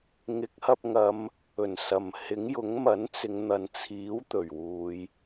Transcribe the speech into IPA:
ŋɪ˨˥k̚hɐ˧p̚ ŋɐ˨˧m | ɵ˨˩nsɐ˨˩mhɪ˨˥ŋjʊ˨˥ŋ mɐ˨˥nt͡sɪ˨˧ŋn̪ɐ˨nt͡sʰiː˨˥w t̪ɵ˨˩ɥwuː˨˧j

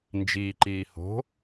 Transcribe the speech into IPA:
nd͡ʒiːǃiː ho̤

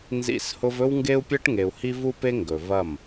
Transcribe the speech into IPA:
nzḭ˦˨shʊ˦v ɵ˦wŋɡe˦u̯pʲɜ˦ʈ ŋe˧u̯ hi˦vu˦pe˦ ŋɡɵ˨ vɐ˦˨m

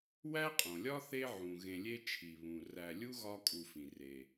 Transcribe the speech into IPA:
wæ˥qʼõ˩lʲɒ˥θe˦ ʕũ˩ɣẽ˨lʲe˦ t͡ʃʰi˩βũ˩ ræ˨lʲu˥ ɣɒ˦kʼu˨fĩ˩ re˩

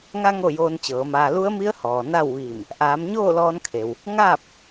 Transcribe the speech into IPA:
ŋa˧ ŋo˥˨joː˧nt͡ɕɤː˩˧maː˧ lu˧˥ə̯mi˧˥ə̯hɔː˩ na˥˨wʋiː˧˩m | ʔaː˩˧mɲoː˥˨lɔː˧nkʰe˩w | ŋaː˥˨p̚

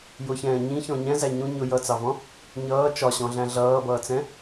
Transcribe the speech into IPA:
jʊçɛ̃ː ɲĩçɔ̃ ɲɛ̃zæ ɲũ ɲʊ jʌt͡sɑvɔ̃ | ɲʌː t͡ʃɒɕɔ̃ɮæ̃ ɮʌːbʌːt͡sɛ̃

